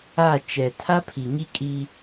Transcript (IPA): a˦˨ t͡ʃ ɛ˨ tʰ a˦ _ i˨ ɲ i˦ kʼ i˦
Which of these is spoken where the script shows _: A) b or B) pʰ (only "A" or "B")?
B